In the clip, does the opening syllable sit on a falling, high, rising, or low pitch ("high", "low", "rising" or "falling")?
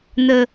low